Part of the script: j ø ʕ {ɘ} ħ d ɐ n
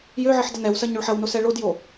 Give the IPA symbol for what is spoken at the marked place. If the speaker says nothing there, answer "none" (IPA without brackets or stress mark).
ɘ